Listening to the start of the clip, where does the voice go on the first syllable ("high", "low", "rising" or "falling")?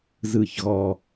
falling